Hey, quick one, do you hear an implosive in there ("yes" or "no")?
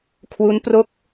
no